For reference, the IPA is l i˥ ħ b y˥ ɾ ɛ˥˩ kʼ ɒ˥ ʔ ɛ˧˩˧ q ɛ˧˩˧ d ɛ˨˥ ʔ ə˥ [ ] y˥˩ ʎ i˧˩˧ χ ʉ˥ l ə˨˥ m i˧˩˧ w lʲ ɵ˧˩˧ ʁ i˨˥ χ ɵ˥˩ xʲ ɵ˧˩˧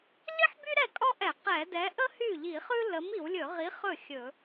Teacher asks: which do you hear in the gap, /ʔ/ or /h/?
h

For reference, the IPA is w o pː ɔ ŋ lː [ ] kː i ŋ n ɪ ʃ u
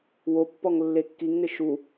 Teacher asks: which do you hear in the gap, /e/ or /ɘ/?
e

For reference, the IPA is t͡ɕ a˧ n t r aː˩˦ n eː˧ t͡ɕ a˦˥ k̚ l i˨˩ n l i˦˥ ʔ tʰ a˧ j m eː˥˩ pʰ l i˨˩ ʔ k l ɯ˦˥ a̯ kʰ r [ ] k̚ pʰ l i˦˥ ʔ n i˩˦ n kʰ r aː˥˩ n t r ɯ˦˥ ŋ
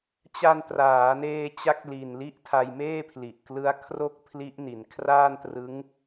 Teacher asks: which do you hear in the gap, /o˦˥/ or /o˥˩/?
o˥˩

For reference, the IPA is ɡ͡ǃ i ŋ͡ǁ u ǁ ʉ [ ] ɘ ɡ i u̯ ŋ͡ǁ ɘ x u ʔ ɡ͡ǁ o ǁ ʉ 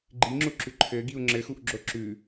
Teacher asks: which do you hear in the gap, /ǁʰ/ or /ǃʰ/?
ǃʰ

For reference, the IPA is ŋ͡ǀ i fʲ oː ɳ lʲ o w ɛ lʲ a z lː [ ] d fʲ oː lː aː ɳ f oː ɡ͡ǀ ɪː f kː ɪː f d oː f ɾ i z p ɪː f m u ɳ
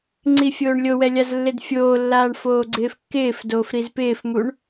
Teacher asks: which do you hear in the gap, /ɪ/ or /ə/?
ɪ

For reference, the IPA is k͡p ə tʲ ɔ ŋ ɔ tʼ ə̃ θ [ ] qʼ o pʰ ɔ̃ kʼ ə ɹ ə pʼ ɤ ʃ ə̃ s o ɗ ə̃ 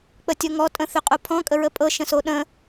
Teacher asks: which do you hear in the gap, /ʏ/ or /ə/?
ʏ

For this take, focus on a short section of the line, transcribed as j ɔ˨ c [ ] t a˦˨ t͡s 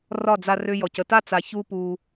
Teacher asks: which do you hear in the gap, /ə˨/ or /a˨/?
ə˨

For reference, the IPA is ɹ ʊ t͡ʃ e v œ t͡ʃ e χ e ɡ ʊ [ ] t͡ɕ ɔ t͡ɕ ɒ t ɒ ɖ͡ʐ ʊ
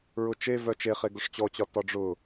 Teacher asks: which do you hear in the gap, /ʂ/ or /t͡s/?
ʂ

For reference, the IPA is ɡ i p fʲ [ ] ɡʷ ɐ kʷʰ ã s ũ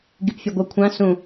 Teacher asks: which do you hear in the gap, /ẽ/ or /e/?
e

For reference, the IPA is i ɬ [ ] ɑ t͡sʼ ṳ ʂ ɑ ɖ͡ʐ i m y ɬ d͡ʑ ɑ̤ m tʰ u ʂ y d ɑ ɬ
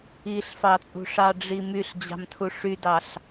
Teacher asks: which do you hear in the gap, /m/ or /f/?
f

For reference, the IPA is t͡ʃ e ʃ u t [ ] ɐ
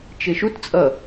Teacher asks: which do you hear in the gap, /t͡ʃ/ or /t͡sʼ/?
t͡sʼ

